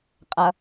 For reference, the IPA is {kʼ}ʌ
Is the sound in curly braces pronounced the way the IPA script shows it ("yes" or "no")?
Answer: no